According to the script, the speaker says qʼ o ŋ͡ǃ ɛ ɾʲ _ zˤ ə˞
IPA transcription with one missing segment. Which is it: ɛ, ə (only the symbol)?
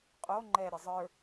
ə